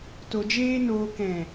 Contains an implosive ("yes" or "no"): no